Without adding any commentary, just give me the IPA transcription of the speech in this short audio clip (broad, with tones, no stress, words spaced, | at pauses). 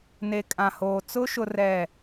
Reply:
ne˨kʼã˨hoː˨ t͡sʊ˦ ʃʊ˦rɛ˦˨